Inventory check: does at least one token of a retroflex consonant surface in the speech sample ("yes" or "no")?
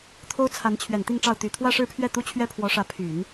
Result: yes